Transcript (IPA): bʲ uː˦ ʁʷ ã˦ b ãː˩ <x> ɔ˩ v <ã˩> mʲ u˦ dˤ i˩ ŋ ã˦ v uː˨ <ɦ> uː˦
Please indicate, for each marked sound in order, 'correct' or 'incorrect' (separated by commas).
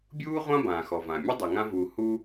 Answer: correct, correct, incorrect